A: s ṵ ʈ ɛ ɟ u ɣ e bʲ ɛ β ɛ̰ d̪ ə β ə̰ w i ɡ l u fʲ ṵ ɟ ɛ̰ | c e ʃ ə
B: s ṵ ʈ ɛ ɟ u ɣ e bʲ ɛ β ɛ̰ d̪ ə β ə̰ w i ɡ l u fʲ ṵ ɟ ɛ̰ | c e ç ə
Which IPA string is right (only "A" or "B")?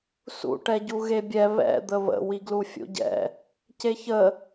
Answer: B